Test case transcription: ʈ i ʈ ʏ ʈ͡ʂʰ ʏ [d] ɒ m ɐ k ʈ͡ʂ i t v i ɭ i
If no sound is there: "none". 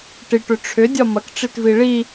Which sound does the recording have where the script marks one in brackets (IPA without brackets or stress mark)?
dʲ